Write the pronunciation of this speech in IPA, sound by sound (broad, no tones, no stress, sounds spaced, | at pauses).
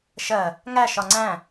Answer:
ʃ ɜ | ŋ æ ʃ ɒ ŋ͡ǀ æ̃